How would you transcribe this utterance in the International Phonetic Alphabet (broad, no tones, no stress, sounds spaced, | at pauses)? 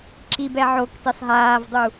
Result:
ǁ i b ɛ ʕ o k t e sˤ ɦ aː v dˤ u